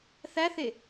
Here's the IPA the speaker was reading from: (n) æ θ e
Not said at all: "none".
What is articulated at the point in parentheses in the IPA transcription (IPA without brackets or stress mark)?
θ